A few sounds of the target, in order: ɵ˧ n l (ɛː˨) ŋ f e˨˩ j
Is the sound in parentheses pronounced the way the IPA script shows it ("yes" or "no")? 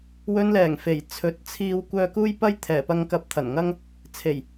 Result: no